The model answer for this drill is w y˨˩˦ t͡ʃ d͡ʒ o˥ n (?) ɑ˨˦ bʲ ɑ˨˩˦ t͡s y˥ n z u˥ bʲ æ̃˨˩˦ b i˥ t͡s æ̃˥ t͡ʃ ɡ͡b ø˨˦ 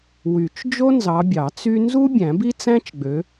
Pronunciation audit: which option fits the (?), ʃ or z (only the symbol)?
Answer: z